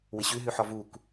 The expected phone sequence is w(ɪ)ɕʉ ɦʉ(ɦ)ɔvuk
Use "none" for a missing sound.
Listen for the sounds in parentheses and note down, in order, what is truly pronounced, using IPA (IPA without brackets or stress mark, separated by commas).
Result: ɪ, ħ